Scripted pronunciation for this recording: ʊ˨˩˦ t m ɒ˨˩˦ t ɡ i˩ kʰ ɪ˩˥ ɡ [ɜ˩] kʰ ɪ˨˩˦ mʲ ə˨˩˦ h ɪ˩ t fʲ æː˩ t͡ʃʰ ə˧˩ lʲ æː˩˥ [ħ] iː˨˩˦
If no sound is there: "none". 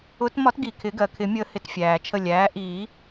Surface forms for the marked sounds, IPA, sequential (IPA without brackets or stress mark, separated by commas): ɜ˩, ʔ